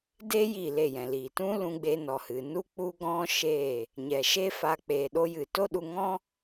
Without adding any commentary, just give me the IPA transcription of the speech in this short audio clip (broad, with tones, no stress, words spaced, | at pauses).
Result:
de˦ ji˦˨le˦˨jɛ̃˨liː˨ tũ˦ lũ˧ɡ͡be˧nɔ˨hɨ˨ nu˦k͡pu˦ɡɔ̃˦ ʃeː˦˨ | ɲɛ˨ʃe˦fa˧ k͡peː˨ɗo˧jɨ˨to˦ ɗu˧ŋɔ̃˦